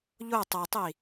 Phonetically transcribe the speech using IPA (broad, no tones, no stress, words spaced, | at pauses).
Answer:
ʎo tˤɐtˤi